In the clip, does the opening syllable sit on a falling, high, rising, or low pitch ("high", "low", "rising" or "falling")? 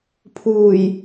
low